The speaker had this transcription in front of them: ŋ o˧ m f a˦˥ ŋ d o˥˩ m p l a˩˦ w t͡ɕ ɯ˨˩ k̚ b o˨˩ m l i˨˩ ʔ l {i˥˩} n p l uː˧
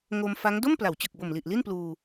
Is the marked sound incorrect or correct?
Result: correct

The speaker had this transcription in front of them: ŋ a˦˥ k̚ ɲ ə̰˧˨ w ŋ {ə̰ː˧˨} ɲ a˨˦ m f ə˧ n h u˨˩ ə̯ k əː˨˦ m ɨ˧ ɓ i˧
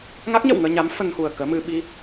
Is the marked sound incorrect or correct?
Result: incorrect: əː˧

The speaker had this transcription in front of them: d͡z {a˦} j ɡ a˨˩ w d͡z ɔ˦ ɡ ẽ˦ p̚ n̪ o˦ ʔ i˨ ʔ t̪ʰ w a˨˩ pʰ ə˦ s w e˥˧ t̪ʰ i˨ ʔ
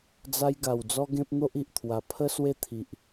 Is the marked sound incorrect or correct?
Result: correct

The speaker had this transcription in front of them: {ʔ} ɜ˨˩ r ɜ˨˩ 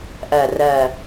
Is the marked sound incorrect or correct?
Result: correct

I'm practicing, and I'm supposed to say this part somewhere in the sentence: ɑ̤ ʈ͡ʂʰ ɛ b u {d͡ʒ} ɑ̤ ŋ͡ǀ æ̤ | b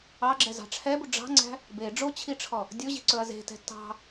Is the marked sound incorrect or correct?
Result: incorrect: ɖ͡ʐ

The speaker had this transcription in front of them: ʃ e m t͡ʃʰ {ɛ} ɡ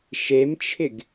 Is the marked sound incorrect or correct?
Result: incorrect: ɪ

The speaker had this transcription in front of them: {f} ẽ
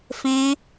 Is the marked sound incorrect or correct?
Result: correct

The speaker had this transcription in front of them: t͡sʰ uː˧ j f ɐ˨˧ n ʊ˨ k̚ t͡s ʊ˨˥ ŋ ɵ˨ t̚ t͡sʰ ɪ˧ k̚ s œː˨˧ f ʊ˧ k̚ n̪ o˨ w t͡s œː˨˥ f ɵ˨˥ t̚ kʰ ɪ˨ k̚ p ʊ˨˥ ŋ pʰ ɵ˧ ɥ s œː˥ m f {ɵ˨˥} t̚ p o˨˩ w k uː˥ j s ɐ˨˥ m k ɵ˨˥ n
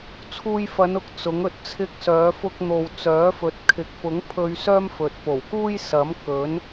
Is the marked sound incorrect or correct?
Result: incorrect: ɵ˨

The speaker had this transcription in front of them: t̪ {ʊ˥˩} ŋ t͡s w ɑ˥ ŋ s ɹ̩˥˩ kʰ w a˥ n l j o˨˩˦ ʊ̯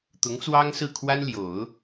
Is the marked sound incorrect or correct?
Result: incorrect: ʊ˧˥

